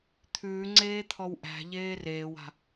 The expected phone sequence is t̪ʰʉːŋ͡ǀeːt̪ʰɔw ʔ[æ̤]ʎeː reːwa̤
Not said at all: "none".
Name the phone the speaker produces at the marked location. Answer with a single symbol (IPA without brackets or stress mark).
æ̤